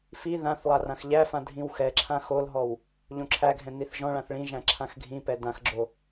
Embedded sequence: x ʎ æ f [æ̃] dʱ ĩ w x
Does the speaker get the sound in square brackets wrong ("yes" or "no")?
yes